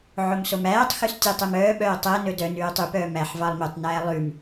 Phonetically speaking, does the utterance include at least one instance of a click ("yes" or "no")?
no